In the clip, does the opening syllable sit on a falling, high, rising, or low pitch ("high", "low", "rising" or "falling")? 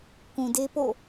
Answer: low